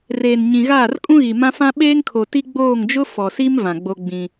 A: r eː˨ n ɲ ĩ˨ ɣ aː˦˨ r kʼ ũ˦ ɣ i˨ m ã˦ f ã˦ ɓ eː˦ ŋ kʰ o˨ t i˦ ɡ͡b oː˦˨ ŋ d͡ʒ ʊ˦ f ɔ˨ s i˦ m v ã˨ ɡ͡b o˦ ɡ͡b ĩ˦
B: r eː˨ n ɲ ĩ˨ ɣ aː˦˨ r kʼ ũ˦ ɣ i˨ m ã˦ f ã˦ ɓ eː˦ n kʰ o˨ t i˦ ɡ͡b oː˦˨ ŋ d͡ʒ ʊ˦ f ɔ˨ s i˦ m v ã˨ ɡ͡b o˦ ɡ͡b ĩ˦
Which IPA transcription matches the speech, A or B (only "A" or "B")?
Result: A